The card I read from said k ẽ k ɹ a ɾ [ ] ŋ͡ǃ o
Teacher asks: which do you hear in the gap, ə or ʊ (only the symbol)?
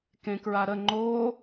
ə